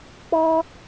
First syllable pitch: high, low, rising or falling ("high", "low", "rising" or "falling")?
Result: high